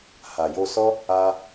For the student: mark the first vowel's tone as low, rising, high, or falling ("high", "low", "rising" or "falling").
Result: low